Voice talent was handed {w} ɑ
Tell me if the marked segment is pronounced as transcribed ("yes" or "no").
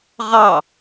no